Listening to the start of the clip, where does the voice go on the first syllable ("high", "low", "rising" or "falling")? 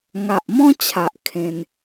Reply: low